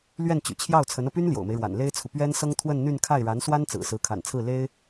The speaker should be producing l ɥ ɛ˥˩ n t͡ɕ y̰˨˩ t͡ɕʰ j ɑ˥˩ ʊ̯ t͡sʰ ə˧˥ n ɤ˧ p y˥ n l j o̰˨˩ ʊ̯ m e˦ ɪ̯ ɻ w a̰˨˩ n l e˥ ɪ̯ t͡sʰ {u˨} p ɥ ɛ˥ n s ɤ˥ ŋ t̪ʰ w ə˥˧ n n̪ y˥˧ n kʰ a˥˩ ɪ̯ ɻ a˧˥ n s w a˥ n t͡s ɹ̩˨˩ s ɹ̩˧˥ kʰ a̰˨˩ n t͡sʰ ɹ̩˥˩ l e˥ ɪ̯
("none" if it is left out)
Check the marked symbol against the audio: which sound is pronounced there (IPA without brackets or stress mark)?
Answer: u˨